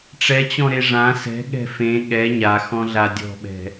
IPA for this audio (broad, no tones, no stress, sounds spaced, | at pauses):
ʈ͡ʂ ɛ t͡ɕ ɔ̃ ɾ e ʐ ã s ɛ̤ ɠ ɛ̤ f ẽ ɠ ɛ ɲ a x ɔ̃ ɮ a dʲ ɔ̤ ɓ ɛ̤